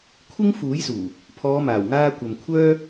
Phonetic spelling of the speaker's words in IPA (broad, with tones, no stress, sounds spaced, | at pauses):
kʷʰ ɪ˥ ŋ f uː˨˥ j s uː˨˩ | pʰ ɔː˨˧ m aː˨˩ w ŋ aː˧ kʷ ɐ˨ m kʷʰ œː˥